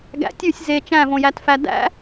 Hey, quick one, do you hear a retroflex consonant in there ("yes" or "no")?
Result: no